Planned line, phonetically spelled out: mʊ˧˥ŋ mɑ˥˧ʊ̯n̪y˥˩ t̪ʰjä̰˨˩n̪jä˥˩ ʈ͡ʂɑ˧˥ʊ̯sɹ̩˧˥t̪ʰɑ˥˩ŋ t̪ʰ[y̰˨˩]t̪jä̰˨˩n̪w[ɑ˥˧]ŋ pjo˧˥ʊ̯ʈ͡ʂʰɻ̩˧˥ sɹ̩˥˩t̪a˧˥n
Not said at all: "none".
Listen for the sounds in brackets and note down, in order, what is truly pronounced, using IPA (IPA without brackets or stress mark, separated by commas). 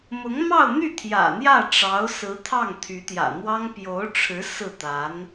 y˧˥, ɑ˥